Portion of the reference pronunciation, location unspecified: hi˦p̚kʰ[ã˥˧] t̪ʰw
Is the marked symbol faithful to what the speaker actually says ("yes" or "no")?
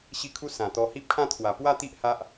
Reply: yes